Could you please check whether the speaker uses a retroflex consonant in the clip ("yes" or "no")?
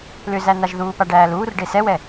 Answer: yes